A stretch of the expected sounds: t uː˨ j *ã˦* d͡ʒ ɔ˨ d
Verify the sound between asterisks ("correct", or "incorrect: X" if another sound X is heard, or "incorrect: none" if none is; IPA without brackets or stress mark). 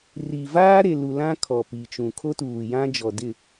correct